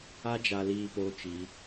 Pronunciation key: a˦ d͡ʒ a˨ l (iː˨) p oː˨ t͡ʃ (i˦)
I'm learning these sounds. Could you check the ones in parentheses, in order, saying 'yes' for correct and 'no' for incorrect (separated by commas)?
yes, no